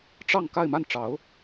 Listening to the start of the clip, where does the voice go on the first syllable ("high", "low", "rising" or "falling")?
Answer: falling